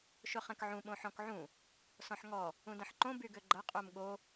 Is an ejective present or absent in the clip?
present